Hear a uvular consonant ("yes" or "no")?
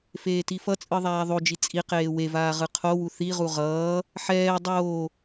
yes